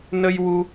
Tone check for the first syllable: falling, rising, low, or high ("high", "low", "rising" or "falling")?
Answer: high